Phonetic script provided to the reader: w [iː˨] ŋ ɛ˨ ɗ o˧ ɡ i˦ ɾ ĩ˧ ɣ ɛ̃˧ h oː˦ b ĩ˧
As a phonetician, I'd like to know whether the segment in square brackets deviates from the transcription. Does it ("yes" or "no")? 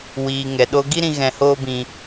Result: no